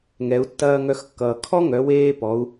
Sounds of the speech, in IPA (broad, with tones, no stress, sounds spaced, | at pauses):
ŋ ɛ˩˧ u̯ tː ɐː˧ ŋ œ˧ x kː ʌː˩ kʰ ɔ˥ ŋ œ˩˧ w eː˧ p ɔ˩˧ u̯